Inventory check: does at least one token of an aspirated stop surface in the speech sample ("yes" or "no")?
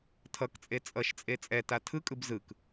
yes